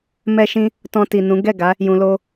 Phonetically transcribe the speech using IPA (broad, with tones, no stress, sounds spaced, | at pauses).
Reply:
m ɛ˦ ʃ ĩ˦ | t ɔ̃˧ t i˨ n ũ˨˦ ɡ ɛ˦˨ ɡ a˨˦ | j ũ˨ l o˧